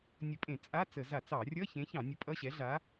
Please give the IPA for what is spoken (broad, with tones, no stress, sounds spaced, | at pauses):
nʲ ə˧˩˧ pʼ ẽ˧˩˧ t͡sʼ a˧˥˧ t͡s ə˧˩˧ z a˧˩˧ t͡s ɑ˧˩˧ rʲ ʌ˧˥˧ ç ẽ˨˥ ç ɑ̃˧˩˧ nʲ ə˨˥ pʼ ʌ˧˥˧ ɕ ɛ˨˥ ɮ a˨˥